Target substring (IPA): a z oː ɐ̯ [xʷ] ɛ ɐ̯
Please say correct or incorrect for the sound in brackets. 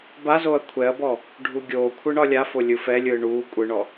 incorrect